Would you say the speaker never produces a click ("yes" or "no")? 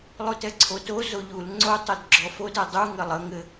no